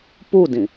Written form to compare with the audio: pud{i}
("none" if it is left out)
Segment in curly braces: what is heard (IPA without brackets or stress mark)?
ĩ